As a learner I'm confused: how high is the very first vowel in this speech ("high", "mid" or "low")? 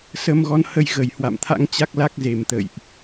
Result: mid